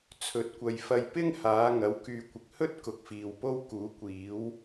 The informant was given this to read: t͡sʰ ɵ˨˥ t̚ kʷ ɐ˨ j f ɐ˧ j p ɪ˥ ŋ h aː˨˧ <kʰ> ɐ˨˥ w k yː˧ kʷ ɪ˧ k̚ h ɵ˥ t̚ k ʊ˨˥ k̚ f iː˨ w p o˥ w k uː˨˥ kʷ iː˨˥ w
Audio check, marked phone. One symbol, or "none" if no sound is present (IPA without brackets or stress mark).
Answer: ŋ